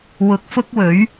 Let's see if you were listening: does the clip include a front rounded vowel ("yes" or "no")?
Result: no